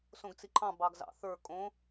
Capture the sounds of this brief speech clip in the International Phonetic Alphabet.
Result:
s õ ɡ t͡s i ǃʰ ɑ̃ b ɑ ɡ z ɑ̰ θ ə˞ kʼ õ

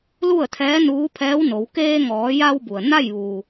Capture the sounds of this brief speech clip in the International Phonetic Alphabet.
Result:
l u˥˨ ə̯ t̪ʰ ɛː˧˥ n uː˧˥ pʰ ɛː˧˥ w n o˩˧ w k eː˧ ŋ ɔː˩˧ j a˧ w b u˩ ə̯ n a˥˨ j ʋ uː˩

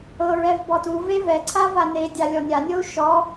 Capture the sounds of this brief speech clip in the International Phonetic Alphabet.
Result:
ɤ ɹ ɛ v b ɔ t u v e v ɛ ǀʰ a v a n e dʲ a lʲ ɔ nʲ a nʲ ɤ u̯ ʃ ɔ

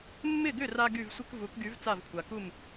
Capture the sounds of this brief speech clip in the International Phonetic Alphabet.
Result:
mː ɪ˥˩ ɡ ʏ˥˩ r a˧ ɡ y˥˩ v sʷ ɪ˥ k v u˩˥ k ɡ y˩˥ v t͡s a˥˩ v kʷʰ a˩ k u˥˩ m

